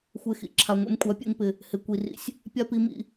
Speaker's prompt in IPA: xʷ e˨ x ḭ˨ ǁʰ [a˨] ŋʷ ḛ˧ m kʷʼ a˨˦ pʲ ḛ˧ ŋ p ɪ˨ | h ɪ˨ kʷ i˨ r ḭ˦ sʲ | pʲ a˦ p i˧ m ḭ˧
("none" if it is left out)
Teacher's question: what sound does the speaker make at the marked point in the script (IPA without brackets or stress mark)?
a˨